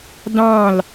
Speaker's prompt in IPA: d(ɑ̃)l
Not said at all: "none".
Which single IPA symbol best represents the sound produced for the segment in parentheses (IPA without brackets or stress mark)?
ɑ̃